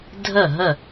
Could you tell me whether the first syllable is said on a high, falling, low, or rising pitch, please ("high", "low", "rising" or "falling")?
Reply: falling